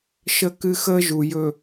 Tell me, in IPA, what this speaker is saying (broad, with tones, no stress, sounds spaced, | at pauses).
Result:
ʃ ə˦ k ɨ˦ x əː˦ ʒ u˨ j ɵ˨